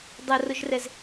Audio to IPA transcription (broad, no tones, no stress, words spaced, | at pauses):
dˤɐrʊʒrɛz